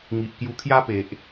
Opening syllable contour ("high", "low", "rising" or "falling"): low